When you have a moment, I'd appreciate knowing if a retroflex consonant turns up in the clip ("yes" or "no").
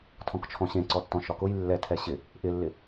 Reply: no